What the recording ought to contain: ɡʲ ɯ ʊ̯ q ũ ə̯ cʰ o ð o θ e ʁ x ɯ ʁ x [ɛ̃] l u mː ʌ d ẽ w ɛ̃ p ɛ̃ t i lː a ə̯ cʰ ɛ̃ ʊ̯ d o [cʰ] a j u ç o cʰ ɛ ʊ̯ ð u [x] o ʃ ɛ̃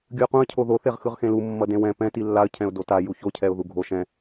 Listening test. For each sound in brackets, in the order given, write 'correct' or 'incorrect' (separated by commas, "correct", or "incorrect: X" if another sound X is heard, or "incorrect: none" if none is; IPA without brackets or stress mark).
incorrect: ẽ, incorrect: t, incorrect: ɡʱ